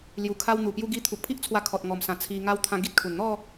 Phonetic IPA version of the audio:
l j u˨˩ kʰ a˧ w n̪ u˨˩ p j u˦ ɡ i˧ t̪ʰ u˨ k̚ pʰ i˦ ʔ t͡sʰ w a˧ kʰ ɔ˨ t̚ ŋ ɔ˨˩ m s ã˨˩ t͡sʰ i˧ ŋ a˦ w t̪ʰ ã˦ ɡ i˦ t̚ kʰ u˨˩ n n̪ ɔ˥˧

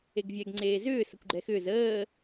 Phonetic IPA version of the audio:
e ɡ vʲ ɛ ɡ ŋ͡ǀ eː z ʏː s ə kʷ ɡ͡ǃ ɛ x ʏː z əː

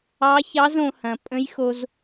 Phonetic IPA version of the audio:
ɑ˧˥ ç ɑ˧˥ z õ˩˧ h ɐ̃˩ pʼ ə̃˧˥ j x o˧ z

